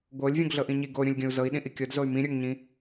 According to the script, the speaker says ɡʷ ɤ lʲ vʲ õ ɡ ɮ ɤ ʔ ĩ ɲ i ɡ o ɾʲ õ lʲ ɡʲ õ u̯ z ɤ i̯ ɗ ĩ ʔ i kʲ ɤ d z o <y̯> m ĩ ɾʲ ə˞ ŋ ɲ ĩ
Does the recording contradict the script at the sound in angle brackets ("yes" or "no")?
no